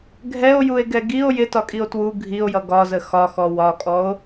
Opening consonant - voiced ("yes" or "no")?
yes